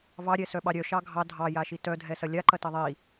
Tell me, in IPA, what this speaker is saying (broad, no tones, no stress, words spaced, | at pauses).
vɑɾʲɛsœɓɑ ɾʲœʃɑ ɡʱɑ dʱɑjaʃi tœdʱɛsɐ lʲaǃɐtɐ ðˤi